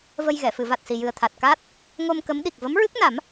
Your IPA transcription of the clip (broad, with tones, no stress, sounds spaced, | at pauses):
v ə˧ j ɣ ɛ˨˩˨ f ɨ˨˩˨ v a˨˩ t̚ s i˨˩ j ɨ˨˩ ə̯ t̪ʰ a˨˩ t̚ k aː˦˥ t̚ | ŋ o˧ m k ə˧˥ m ɗ i˨˩ k̚ v ə˧˥ m ɹ ɨ˦˥ k̚ n a˨˩˦ m